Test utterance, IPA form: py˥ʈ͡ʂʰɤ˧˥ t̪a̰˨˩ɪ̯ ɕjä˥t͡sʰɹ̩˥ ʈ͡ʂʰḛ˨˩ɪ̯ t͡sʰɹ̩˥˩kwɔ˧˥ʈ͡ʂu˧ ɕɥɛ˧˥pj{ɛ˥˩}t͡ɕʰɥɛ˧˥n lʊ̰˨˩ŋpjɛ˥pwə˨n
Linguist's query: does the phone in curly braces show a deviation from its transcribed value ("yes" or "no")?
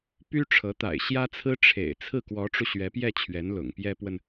no